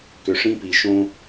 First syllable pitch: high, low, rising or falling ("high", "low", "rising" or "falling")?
low